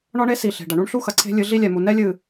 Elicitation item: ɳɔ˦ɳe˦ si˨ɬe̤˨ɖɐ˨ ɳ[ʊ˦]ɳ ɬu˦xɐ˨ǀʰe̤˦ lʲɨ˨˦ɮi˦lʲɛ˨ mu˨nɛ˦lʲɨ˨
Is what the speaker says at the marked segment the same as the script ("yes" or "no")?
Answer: no